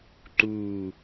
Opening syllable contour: low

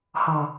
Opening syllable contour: low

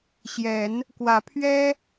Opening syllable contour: rising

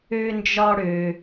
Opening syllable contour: high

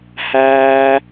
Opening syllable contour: low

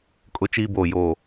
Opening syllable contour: high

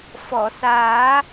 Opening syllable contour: low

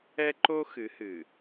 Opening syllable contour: high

